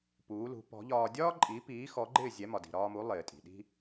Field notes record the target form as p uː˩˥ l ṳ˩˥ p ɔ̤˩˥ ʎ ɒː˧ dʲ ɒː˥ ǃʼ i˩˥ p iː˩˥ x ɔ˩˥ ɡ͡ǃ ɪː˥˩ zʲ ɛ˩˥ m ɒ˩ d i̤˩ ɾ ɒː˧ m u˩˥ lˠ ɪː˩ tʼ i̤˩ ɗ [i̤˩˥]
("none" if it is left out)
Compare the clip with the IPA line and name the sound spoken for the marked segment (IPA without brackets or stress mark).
i̤˥